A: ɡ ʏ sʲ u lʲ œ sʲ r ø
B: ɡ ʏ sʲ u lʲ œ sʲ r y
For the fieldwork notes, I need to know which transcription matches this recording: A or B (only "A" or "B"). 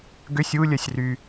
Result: B